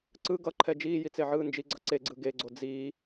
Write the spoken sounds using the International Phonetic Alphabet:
ǀ ɯ ɡ ʌ ǃʰ ɛ d͡ʒ iː j i t͡s e ʕ ɯː n d͡ʒ i ɡ͡ǀ ʌ ǀ e ɡ͡ǀ ɯ ɡ e ɡ͡ǀ o d͡z iː

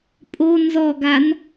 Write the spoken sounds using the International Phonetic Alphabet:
pʼ o n z ɔ ɡ a n

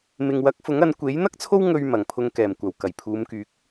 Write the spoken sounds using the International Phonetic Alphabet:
m ɪ˨ ŋ w ɐ˨˥ k̚ f ʊ˨˥ ŋ ɐ˨˧ n kʷ e˨˥ j n̪ ɐ˥ k̚ t͡sʰ o˥ w ŋ ɵ˧ ɥ m ɐ˨˩ ŋ pʰ ʊ˧ ŋ k ɛː˨˩ m kʷ ɐ˨˩ w k ɐ˨˩ j pʰ uː˨˧ m k yː˨˥ k̚

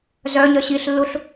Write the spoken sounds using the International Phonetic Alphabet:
z œ ɲ œ ɕ i ɬ lː u ɬ

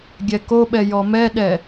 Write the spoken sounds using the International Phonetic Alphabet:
ɡʲ ɛ k o ɓ ɛ j ɔ m ɛ ɗ ɛ

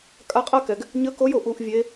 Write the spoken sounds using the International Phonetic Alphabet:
kʼ a˧˥ qʼ a˥ k ɛ˩ ɡ | ɲ ə˧˥ k o˧˥ j o˩ ʔ u˧˥ ʔ vʲ e˧˥

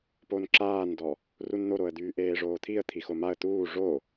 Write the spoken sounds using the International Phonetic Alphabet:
p o n ǁ aː n d ɔ | r u n n̪ o ɾ o ə̯ d̪ yː ʔ eː ʐ oː t̪ʰ i ə̯ t̪ʰ i x o m a ə̯ t̪ uː ʐ o

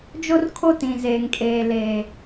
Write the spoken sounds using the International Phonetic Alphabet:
d͡ʒ o˦ r kʰ o˦ t ĩ˨ z eː˨ ŋ kʼ eː˨ l eː˨

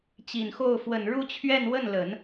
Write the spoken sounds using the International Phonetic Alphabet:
t͡ɕ i˨˩ n x o˥˩ ʊ̯ f w ə˨˩ n ɻ u˥˧ t͡ɕʰ ɥ ɛ˥˧ n w ə˥˩ n l ə˨˩˦ n

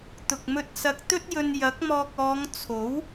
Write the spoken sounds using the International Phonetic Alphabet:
t̪ ʊ˨ k̚ m ɵ˧ t̚ s ɐ˧ k̚ t̪ ɵ˥ t̚ j ɵ˧ n j ɐ˨˥ k̚ m ɔː˧ k̚ ɔː˨˧ ŋ t͡sʰ o˨˥ w

